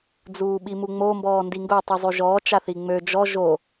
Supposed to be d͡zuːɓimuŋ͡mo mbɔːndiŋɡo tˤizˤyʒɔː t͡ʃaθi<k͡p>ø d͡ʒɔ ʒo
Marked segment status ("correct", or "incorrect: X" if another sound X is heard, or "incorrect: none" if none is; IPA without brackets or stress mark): incorrect: ŋ͡m